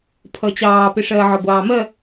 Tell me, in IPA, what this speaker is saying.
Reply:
pʰ ʌ t͡ɕ ɑː p ɪ ʂ ɜː ʕ ɒ ɡʷ ɑː m ɜ

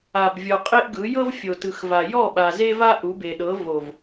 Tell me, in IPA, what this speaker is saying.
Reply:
a˨ b vʲ ɔ˨ qʼ e˦ ʔ ɡ ɯ˨˦ j ɤ˦ v fʲ o˨ t ɯ˨ x v a˨ j ɔ˦˨ ɓ a˨ z e˦ v a˦ ʔ u˨˦ b e˨ ɗ ɤ˨˦ v o˨ v

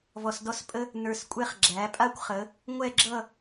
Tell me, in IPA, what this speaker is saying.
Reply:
v ɔ˧ s d ɔ˥ s pʼ ə˥ | n ə˞˧ s kʷʼ ɛ˥˧ χ ɡ͡ǁ æ˩˧ pʼ a˥˧ kʷ χ ə˩˧ | ŋʷ ɛ˥˧ ɡ͡ǁ ʌ˥˧

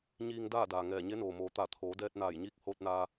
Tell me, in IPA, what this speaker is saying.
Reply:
ɲ iː˧ ŋ d aː˥˨ d aː˩ ŋ ɛː˧˩ ɲ e˧˥ n oː˩ m oː˩˧ t̪ a˧˩ t̪ʰ oː˩˧ d ɛː˧ t̚ n aː˧˩ j ɲ iː˧˥ k̚ h oː˧ t̚ n aː˧

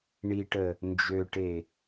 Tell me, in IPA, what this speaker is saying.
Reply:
ɳ i ʈ ə | n d͡ʒ ø ʈ e

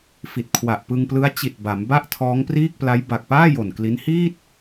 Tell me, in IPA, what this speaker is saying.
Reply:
f i˨˩ t̚ kʰ w a˨˩ ʔ p ɯ˧ ŋ p l ɯ˦˥ a̯ t͡ɕ i˨˩ t̚ b a˩˦ m b a˥˩ ʔ tʰ ɔː˦˥ ŋ p r iː˥˩ k̚ p l a˦˥ j b a˨˩ k̚ p aː˥˩ j o˨˩ n k l i˦˥ n h iː˥˩ t̚

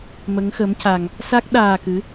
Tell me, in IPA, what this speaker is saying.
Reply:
m ə˧˥ ŋ x ə˧˥ m c a˧ ŋ | s a˦˥ k̚ ɗ aː˧ k ɨ˧˥

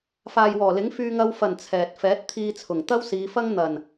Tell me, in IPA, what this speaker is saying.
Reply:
f aː˨ j w ɔː˨˩ l ɪ˨˥ ŋ f yː˧ ŋ ɐ˧ w f ɐ˨˩ n t͡sʰ ɛː˨ t̚ f ɛː˨˥ t̚ t̪ʰ iː˧ t͡sʰ ʊ˨˩ ŋ t̪ ɐ˥ w s iː˨˧ f ɐ˥ ŋ n̪ ɐ˨˩ n

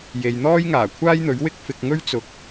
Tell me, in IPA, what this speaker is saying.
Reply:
j e˨ j n̪ ɔː˥ j ŋ aː˨˩ kʷʰ aː˥ j n̪ ɵ˨˥ ɥ w ɪ˥ k̚ f ɪ˨ k̚ ŋ ɵ˥ ɥ t͡s ʊ˨˥ k̚

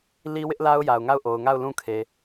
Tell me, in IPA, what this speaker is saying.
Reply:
l i˦ w ɪ˦ ʔ l a˦ ʊ̯ j a˨ ʊ̯ ŋ a˦˨ ʊ̯ ʔ o˨ ʊ̯ ŋ a˦˨ ʊ̯ l ũ˦˨ kʰ e˨

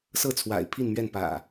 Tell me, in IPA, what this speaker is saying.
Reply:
s ɤ˥˨ t͡sʰ w a̰˨˩ ɪ̯ pʰ i˥˨ n m ɥ ɛ˥˨ n p ä̰˨˩

